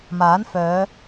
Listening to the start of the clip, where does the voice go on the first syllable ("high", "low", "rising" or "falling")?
rising